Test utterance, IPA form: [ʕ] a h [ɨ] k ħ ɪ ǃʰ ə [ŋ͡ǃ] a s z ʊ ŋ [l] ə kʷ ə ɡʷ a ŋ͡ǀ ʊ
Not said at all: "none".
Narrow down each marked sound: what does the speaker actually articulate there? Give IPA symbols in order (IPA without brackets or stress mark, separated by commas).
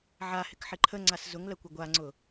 ʕ, ɪ, ŋ͡ǀ, l